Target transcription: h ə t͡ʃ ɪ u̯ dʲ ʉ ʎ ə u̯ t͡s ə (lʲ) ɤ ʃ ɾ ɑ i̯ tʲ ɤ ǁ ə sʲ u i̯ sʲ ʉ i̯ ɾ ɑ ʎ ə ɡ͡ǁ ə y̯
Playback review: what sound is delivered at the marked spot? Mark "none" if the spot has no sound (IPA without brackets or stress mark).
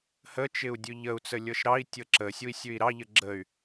lʲ